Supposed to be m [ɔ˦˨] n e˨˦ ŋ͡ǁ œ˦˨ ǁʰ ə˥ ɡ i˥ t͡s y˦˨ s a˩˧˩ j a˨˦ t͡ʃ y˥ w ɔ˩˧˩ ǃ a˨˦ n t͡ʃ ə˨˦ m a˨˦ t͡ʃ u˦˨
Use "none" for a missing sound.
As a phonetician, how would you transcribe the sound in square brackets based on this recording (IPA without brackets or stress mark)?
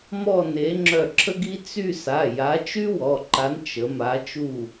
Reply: ɔ˦˨